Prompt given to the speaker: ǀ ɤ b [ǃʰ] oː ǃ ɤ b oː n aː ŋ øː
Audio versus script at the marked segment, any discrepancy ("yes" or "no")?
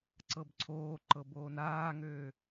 yes